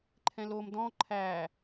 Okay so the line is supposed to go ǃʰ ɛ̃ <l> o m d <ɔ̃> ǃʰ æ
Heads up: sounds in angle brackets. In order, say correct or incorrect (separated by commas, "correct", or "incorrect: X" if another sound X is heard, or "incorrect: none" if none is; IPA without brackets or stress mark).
correct, correct